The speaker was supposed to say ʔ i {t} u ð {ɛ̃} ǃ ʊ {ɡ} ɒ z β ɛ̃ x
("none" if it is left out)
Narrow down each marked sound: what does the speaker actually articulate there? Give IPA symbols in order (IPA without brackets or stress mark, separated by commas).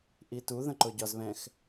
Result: t, ə̃, ɟ